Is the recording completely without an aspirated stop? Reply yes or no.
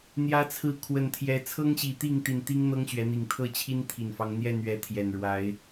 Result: no